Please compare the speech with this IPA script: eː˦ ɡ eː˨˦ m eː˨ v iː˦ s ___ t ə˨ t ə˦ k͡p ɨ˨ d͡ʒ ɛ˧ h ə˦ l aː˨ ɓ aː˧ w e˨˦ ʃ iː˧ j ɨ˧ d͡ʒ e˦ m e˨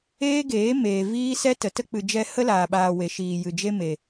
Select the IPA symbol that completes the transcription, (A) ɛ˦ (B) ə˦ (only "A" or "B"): A